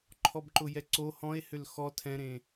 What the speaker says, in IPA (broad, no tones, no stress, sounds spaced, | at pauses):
ǃʰ ɔ b ǃ ʊ j ɛ ǀ o h ɔ̃ e̯ h ʏ l x ɔ tʰ ɛ̃ ɾ ẽː